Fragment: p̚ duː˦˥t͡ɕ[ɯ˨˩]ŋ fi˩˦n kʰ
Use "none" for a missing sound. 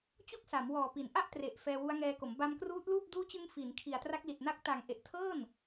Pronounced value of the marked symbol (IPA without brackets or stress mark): ɯ˧